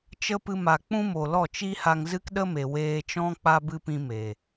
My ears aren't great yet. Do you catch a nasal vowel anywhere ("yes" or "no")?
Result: yes